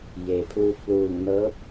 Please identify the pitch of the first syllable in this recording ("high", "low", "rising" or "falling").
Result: low